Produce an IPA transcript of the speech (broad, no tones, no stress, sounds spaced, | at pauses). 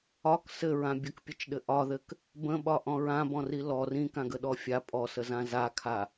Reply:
ɒ k s ɘ ɹ ã bʲ ə k pʲ ɘ t͡ʃ ɗ ɘ ʔ ɒ ð ɘ k | b ə̃ ɓ ɒ ʔ ɔ̃ ɹ ã b ɔ̃ r i l ɔ r ĩ k ã ɡ ə ɗ ɔ fʲ a pʼ ɔ s ə z ã z a kʰ a